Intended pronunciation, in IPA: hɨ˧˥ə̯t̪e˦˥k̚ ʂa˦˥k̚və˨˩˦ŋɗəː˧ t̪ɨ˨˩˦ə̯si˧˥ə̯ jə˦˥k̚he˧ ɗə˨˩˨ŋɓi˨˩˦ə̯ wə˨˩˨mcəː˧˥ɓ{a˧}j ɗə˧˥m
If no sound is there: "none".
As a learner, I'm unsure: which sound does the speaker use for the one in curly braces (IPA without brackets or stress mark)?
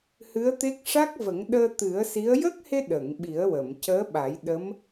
a˨˩˦